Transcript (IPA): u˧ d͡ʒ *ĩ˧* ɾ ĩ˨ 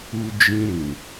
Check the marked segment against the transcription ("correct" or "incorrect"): correct